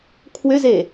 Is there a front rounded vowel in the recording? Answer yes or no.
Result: yes